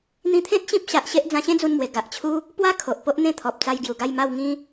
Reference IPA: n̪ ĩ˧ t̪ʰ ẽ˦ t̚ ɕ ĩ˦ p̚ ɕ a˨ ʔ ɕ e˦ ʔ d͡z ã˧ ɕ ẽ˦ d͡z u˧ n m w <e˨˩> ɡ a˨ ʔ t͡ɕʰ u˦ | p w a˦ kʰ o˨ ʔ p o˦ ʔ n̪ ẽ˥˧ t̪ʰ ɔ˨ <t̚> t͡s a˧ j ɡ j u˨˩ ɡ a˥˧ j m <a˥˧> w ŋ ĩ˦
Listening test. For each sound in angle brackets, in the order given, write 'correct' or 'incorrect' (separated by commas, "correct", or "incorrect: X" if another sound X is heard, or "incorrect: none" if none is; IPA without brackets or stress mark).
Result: correct, incorrect: p̚, correct